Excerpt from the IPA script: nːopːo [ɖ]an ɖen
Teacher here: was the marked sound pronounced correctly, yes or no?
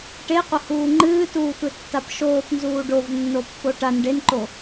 no